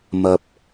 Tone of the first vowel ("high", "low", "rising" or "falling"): low